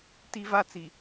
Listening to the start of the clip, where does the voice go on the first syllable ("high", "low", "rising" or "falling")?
high